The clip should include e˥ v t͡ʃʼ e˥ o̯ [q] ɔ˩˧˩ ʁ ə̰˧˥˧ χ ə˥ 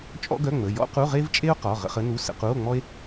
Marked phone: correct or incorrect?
correct